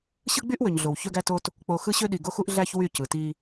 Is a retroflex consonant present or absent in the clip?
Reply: absent